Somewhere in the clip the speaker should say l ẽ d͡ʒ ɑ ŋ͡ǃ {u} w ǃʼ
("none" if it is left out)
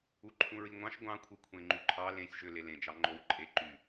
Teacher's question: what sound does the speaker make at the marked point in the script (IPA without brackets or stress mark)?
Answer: o